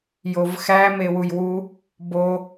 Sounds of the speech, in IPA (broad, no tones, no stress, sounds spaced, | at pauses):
j o v x æ m e w u j w u | b o